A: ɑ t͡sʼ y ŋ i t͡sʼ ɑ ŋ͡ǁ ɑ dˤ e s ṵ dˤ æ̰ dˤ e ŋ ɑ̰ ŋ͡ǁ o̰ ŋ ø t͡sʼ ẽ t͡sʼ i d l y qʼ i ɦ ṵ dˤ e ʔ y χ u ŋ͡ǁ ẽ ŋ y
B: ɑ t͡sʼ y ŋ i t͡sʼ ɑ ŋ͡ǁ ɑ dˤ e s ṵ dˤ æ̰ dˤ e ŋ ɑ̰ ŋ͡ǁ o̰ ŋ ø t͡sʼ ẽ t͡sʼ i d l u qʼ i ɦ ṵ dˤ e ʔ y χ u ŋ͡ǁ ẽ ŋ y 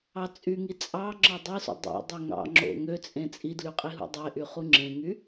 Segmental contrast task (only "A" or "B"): A